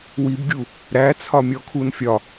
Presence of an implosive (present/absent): absent